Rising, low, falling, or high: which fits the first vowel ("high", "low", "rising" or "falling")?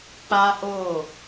high